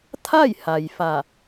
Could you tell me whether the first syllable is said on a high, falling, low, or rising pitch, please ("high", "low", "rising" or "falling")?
falling